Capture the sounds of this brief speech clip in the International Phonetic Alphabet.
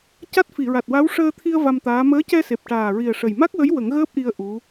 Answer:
c a˦˥ t̚ f i˨˩˨ ɹ a˨˩ t̚ w a˧˥ w ʂ əː˧ t̪ʰ i˧ ə̯ v a˧ m t̪ aː˧˥ m əː˧˥ c ɛ˧ s e˨˩ p̚ ʈ aː˨˩ ɹ i˨˩ ə̯ ʂ ə˨˩ j m a˦˥ k̚ w ə˧˥ j w ə˨˩˦ ŋ ɣ əː˦˥ p̚ ʔ i˧ ə̯ ʔ u˧˥

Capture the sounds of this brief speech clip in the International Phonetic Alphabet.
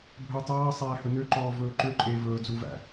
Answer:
bʱ ɵː tˤ ɑː sˤ æː h ɵ n ø ǃ ɔː v ɵː ǃ ø ǃʼ eː v ɵː d͡z u v æ̰

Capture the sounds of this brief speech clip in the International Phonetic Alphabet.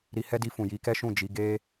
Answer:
ɾ i˧ h ɛ˦ d i˧ f ũ˨ j i˨˦ k ɛ˦ ʃ ũ˦˨ d͡ʒ i˨˦ ɡ e˦

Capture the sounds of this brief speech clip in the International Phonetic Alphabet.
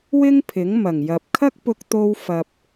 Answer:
w ɪ˥ ŋ pʰ ɪ˨˥ ŋ m ɐ˨˩ ŋ j ɐ˨ p̚ kʰ ɐ˥ k̚ p ʊ˧ k̚ t̪ o˧ w f ɐ˨ p̚

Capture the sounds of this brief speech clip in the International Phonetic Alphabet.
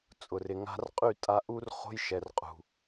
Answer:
t͡sʼ ʊ˨ r ɪ˨ ŋ a̤˧ r qʼ y˦˨ tʼ a˧ ʔ u˦ r χ o̤˦ j ʃ ɛ˨ r qʼ ṳ˨

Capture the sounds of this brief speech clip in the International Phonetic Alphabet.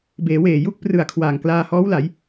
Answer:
b eː˩˦ w eː˨˩ j u˥˩ k̚ p r ɯ˨˩ a̯ kʰ w aː˨˩ ŋ k l aː˧ h ɔː˦˥ w l a˩˦ j

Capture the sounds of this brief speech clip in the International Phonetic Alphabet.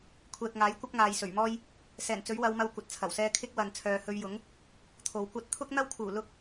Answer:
kʷʰ ɛː˨ k̚ ŋ aː˨˥ j kʷ ɐ˥ p̚ ŋ aː˨ j s ɵ˨˩ ɥ m ɔː˥ j | s ɛː˨˩ n t͡s ɵ˨˥ ɥ w ɐ˨˧ w m ɐ˧ w kʷ ɐ˨˥ t̚ t͡sʰ ɐ˨˩ w s ɛː˥ kʰ ɪ˥ k̚ w ɐ˨ n t͡sʰ œː˨ h ɵ˧ ɥ j ʊ˨˥ ŋ | t̪ʰ o˨˧ w kʷ ɐ˥ t̚ t̪ʰ ʊ˥ k̚ n̪ ɐ˥ w kʰ uː˨˩ l ʊ˥ k̚

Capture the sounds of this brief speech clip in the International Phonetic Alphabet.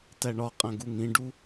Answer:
t æ ɳ ɒ qʼ æ̃ ɡ u ŋ ĩ ɖ u

